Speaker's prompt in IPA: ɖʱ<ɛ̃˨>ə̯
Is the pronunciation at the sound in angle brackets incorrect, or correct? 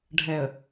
incorrect